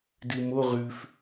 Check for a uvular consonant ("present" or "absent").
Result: present